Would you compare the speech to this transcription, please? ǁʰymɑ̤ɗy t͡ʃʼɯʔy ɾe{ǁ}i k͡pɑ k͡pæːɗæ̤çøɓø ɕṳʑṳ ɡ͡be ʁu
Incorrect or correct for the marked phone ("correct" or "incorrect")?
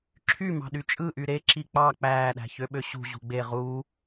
correct